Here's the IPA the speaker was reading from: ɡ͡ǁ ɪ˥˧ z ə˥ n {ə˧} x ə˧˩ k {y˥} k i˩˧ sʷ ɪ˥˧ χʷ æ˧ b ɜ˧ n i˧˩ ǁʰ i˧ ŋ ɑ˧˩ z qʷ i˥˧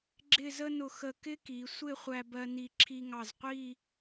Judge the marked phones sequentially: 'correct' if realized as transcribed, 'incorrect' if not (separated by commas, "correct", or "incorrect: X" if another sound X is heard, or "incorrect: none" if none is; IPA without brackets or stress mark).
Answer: incorrect: ʊ˧, incorrect: ɪ˥